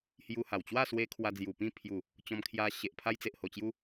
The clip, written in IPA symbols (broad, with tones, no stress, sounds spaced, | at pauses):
h j u˧ h a˨˩ w t͡ɕ w a˥˧ s w e˧ kʰ w a˧ d͡z j u˨˩ p ĩ˥˧ pʰ j u˨˩ | t͡ɕ ɔ̃˧ m kʰ j a˧ ɕ e˨ ʔ pʰ a˧ j t͡s e˨ ʔ h o˨˩ t͡ɕ j u˧